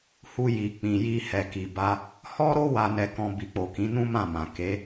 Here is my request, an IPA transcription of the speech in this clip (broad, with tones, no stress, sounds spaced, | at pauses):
h u˧ j i˨ k͡p ĩ˨ j i˧ h ɛ˨ k i˨ b a˧ | h ɔ˦ ɾ o˦ w a˧ n ɛ˧ k ɔ̃˧ b i˨ k͡p o˨ k ĩ˨˦ n ũ˦ m ã˦˨ m ã˨ k e˨˦